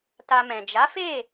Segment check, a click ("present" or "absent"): absent